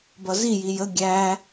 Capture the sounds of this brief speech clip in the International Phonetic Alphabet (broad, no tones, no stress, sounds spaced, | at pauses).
b ʌ z i j i j ə ɡʲ æ